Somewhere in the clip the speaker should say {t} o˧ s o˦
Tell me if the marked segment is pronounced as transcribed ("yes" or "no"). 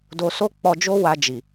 no